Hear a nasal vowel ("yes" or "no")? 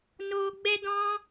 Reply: yes